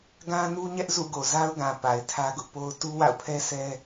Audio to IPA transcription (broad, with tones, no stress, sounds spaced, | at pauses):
ɡ ã˦ n u˦ ɲ ɛ˦ ʔ z ṵ˦˨ ɡ o˨ z a˦ ʊ̯ ɡ ã˨ p a˨ ɪ̯ tʰ ä˦ ɡ ʊ˦ ʔ p o˦ ʊ̯ t u˦ w a̰˦˨ ʊ̯ pʰ ɛ˦ s ɛ˦